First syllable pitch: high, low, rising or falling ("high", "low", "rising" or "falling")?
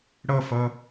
falling